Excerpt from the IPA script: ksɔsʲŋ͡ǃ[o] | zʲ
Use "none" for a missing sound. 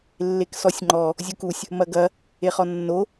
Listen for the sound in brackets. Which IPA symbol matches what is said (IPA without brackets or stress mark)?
ɔ